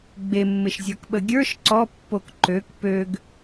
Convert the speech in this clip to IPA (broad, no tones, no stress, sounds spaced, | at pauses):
ɡ͡b e mː ɪ ʃ zʲ ə˞ k ɓ ə ɡʲ ə˞ ʃ ǀ ɔ pː o k ǃ ø k p ø ɡ